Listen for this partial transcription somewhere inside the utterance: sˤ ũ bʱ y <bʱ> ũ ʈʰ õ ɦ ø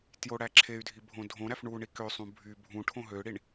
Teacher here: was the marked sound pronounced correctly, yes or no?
yes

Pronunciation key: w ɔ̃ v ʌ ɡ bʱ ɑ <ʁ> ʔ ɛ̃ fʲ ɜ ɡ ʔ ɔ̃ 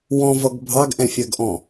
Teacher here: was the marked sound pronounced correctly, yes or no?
no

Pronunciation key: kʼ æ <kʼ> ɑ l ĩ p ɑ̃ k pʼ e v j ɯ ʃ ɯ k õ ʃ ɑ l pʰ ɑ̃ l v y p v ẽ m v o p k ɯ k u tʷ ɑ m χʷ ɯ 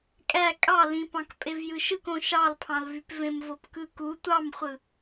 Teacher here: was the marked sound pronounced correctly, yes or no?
yes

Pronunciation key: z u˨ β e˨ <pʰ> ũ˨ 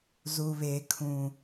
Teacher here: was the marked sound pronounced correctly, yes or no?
no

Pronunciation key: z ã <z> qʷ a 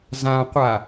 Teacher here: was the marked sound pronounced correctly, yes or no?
no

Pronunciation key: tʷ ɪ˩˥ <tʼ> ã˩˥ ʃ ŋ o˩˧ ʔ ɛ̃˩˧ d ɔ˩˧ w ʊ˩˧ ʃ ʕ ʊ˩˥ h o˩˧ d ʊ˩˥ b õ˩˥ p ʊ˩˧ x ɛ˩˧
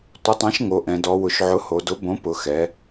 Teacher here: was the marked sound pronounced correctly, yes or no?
no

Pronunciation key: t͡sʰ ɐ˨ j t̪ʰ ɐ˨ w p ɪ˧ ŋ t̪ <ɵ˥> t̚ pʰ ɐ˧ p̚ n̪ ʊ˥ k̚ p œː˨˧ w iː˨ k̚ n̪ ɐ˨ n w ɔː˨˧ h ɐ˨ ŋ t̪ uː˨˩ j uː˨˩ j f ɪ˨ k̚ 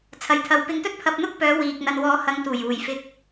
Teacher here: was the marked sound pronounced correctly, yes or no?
yes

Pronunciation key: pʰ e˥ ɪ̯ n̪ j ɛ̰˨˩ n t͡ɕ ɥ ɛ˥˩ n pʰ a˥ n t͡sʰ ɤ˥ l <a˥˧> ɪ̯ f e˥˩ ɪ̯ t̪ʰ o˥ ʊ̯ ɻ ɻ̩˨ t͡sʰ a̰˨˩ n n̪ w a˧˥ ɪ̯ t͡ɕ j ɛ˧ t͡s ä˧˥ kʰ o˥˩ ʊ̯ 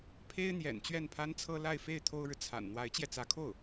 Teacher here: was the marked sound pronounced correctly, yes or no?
yes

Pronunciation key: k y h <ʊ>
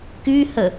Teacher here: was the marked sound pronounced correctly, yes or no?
no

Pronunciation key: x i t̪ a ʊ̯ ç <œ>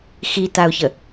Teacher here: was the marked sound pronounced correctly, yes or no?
no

